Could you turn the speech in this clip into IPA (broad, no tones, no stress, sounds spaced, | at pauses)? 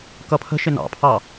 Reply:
k ʌ pʰ ə̤ ʃ ɪ n ɑ̰ pʰ ɑ